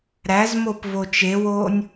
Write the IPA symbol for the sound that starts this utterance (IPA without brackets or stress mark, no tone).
ɾ